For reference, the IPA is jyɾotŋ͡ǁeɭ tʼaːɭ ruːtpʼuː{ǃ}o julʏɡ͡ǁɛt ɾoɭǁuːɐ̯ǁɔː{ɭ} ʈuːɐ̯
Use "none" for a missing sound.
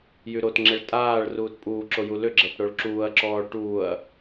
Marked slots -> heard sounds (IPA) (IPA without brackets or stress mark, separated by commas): ǁ, ɭ